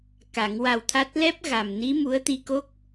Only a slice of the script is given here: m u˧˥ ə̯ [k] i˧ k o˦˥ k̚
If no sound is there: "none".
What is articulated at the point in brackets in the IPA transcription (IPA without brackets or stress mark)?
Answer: t̪